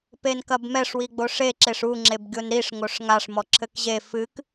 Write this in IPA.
p e n k ɐ b m ɛ ʂ w i ɡ͡b o ʂ e ǁ e ʂ u ŋ͡ǁ e b ɡʲ o n ɾ i ʂ ŋ o ʂ ŋ a ʂ m ɔ ǁʰ ɘ k ʑ e f ɨ k

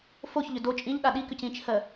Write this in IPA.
f o ç ʎ ʏ d o t͡ʃʼ ĩ ʎ ɗ a ɗ i k ʏ c ĩ t͡ʃʰ ɜ

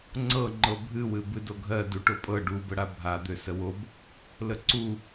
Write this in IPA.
ŋ͡ǀ ɤ ŋ͡ǃ ɤ bʱ ɨ w ɨ b ɨ d o ɡʱ ɜ d u ʈ o pʼ ɤ ɖ u b ə ɽ a bʱ a d̪ ø s ə w o b | l ə ǀ u

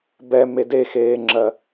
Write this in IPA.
b ɛ m e d e x eː ŋ͡ǁ ɜ

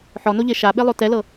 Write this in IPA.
ħ ɔ n o ʎ e ʃ a ɓ e lˠ o t ɛ l ɤ

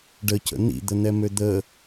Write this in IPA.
ɖ ə c ə̰ n̪ ḭ d̪ ə n̪ ɛ m ø d̪ ə

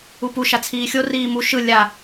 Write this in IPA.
u p u ʃ a t͡sʰ iː xʲ o r iː m u ʃ ɯ lʲ a

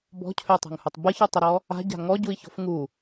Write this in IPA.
b ɔ̤ cʰ ø tˤ a̤ ŋ h u tˤ b ə ç u tˤ ə ɾ ɔ | a̤ ɟ a̤ ŋ ɔ ɟ u i̯ ç ɔ̤ f ŋ u

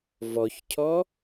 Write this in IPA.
v ɔ ç cʰ ɔ

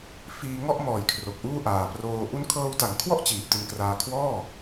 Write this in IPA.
f iː˧ ŋ ɔ˥˩ ʔ m ɔː˨˩ j kʰ r o˨˩ k̚ ʔ uː˥˩ ʔ aː˨˩ p r oː˧ ʔ u˦˥ n kʰ ɤː˧ w t a˩˦ ŋ kʰ w ɔ˥˩ ʔ t͡ɕ iː˨˩ p̚ t i˧ n k r aː˧ kʰ w ɔː˥˩

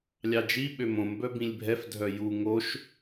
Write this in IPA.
lʲ ɑ d͡ʒ i ɓ ø m õ m b œ b ĩ lʲ bʱ ɛ f dʱ œ j u ŋ o ʃ

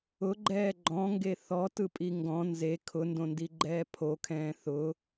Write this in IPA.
ʊ ɡ͡ǃ ɛː ɡ͡ǃ ɔ̃ ŋ ɡ e θ ɔ t ɯ pʼ i ŋ ɡ ɔ̃ n z e kʰ ʊ n d õ n d i ɡ͡ǃ ɛː pʰ o kʰ ɛ̃ː θ ʊ

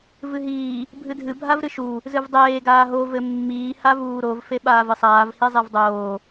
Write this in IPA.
v ɨ ɦ iː | bʱ ɨ dʱ ɨ bʱ a v ɾ ɨ ʃ u | z ɨ v dˤ eː ɡ aː ɦ o v ɘ mː iː h a v uː ɾ o v f e ɓ aː v ɨ sˤ aː v h i zˤ e v dˤ oː

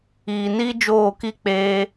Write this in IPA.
iː˨ n iː˧ d͡ʒ oː˦˨ k i˦ k͡p eː˧

